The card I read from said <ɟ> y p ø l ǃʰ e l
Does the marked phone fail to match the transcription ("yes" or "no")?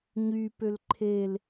yes